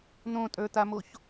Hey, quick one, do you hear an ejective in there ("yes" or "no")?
yes